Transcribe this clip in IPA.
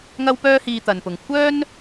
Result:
ŋ ɐ˧ w p œː˧ h iː˨ t̪ ɐ˨ n p ʊ˨ ŋ kʷʰ œː˥ n

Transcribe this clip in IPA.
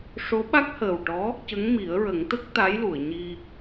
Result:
ʂ o˧˥ ɓ a˦˥ k̚ h əː˨˩ w ʈ ɔ˧˥ | c ə˧˥ ŋ m i˨˩˦ ə̯ ɹ ə˨˩˦ ŋ t̪ ə˦˥ k̚ t̪ a˧˥ j l u˨˩˨ ə̯ ɲ i˧

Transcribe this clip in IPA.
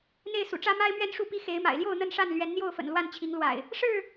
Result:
n̪ e˥˨ ɪ̯ s ṵ˨˩ ʈ͡ʂ ä˦ m a˦ ɪ̯ m ɥ ɛ˦ n ʂ u˥˨ p i˦ x e˨˦ ɪ̯ m a̰˨˩ ɪ̯ l j o˥˨ ʊ̯ n̪ ə˥˨ n ʂ a˥˨ n l ɥ ɛ˨˦ n n̪ j o˥˨ ʊ̯ f ə̰˨˩ n l w a˥˨ n t͡ɕʰ i˨˦ ŋ l w a̰˨˩ ɪ̯ | ʂ ɻ̩˥˨

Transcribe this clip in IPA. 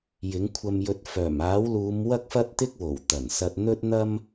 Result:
j ɪ˨˥ ŋ kʷʰ ɐ˧ m j ɵ˧ t̚ f œː˨˩ m aː˨˥ w l uː˨˧ m w ɐ˥ k̚ f ɐ˥ t̚ t̪ ɪ˥ k̚ w o˨˩ w t̪ ɐ˨˩ n s ɐ˧ t̚ n̪ ɵ˥ t̚ n̪ ɐ˥ m

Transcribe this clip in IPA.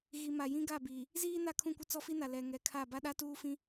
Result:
ɣ i˨ m a˨ j ĩ˦ ɡ a˦˨ b iː˨ | z iː˦ n a˦˨ kʰ ũ˦˨ kʷ ɪ˦ t͡s ɔ˦ f i˦ n a˨ l ɛ˨ ŋ ɛ˨ kʰ a˦˨ b a˦ ɗ a˦ t uː˦ f ĩ˦

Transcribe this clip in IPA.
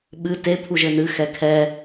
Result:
ɓ ɨ t e pʰ u ʒ ɘ n ɨ x ɛ kʰ ɛ

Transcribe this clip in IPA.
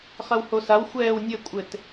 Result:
χ ɐ w h o s a w xʷ ɛː w nʲ ɘ kʷʼ ɘ t

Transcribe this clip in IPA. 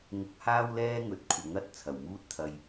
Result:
ŋ ʊ˧ k̚ h aː˥ w l ɛː˥ ŋ ɵ˨˥ t̚ kʷʰ ɐ˨˥ ŋ ɐ˧ t̚ t͡sʰ ɐ˨˩ w m uː˥ t̚ t̪ʰ ɐ˧ j

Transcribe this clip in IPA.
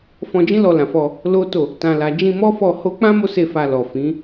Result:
f ɔ̃˧ d͡ʒ ĩ˦ l ɔ˧ l ã˨ f ɔ˧ | l o˦ t o˦˨ | t ã˨ l a˨ d͡ʒ ĩ˧ m ɔ˦ f ɔ˦˨ h o˧ k͡p ã˦ m o˦ s e˧ f a˨ l ɔ˨ f ĩ˨˦

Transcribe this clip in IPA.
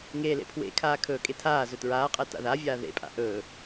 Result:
ŋ eː l ḛ pʰ w ḛ kʰ aː kʰ ɵː kʼ e tʰ aː z ɵ t ɹ aː qʼ ɛ t a̰ ð a vʲ aː ð ḛ pʼ a̰ ʔ ɵː

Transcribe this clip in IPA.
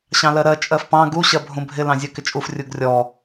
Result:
ɕ ɑ̃ l ɜ ɾ ɜ t͡ʃʼ ɜ f p ɑ̃ ɡ u ɕ ɜ bʱ ũ bʱ ɪ l ɑ̃ zʲ ɜ k ɪ t͡ʃʼ u f rʲ u ɡ rʲ ɔ

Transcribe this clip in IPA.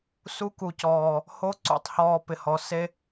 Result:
s u˧ k u˨ c ɔː˨ | h o˧ ǀ ṵ˨ tˤ h ɔː˨ p ɪ˨ h ɔ˨ s e˧

